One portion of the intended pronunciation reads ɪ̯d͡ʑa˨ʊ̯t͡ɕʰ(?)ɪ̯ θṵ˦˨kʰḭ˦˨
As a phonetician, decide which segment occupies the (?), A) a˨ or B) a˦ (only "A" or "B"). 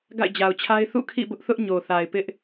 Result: B